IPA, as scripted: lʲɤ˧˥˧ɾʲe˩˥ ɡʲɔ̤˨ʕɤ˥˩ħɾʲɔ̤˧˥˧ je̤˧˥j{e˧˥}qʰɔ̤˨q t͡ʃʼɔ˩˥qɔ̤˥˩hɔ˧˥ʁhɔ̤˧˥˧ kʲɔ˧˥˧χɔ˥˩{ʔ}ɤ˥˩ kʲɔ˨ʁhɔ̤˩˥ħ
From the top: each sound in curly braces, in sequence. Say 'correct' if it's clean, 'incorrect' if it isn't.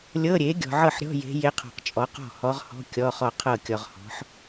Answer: correct, incorrect

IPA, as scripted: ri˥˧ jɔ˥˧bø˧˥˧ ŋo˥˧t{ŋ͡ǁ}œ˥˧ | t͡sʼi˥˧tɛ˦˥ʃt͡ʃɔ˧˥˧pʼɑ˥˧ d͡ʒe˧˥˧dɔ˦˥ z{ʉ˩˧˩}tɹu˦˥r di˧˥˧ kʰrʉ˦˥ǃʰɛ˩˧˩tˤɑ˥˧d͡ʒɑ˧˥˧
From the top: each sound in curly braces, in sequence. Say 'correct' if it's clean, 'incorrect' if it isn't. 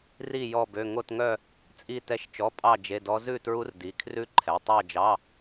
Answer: incorrect, incorrect

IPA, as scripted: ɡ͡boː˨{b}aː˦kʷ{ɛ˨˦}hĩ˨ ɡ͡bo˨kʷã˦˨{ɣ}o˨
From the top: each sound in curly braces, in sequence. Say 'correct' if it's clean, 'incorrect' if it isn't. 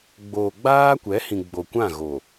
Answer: incorrect, correct, correct

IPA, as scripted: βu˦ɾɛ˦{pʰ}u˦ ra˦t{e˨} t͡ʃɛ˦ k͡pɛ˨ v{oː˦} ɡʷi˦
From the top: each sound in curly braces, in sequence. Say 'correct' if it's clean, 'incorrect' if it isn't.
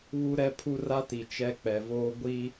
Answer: correct, incorrect, correct

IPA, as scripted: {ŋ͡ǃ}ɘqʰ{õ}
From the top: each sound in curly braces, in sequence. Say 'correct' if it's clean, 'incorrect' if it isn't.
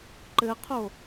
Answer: incorrect, incorrect

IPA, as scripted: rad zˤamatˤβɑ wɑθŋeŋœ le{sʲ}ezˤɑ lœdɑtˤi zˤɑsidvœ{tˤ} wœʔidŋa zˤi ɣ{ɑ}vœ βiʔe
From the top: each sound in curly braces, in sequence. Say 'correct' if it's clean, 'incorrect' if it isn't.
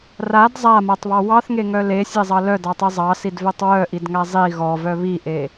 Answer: correct, correct, incorrect

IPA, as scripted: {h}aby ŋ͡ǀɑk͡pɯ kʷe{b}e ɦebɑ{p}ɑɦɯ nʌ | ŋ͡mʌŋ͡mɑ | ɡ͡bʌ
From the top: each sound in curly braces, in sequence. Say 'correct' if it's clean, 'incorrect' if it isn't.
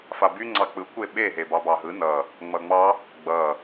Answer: incorrect, incorrect, incorrect

